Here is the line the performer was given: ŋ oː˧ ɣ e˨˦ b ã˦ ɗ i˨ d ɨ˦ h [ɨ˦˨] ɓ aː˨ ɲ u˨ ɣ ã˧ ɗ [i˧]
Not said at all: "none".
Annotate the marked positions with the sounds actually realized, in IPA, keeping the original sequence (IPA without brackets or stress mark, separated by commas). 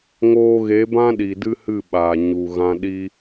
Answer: ɨ˦˨, i˦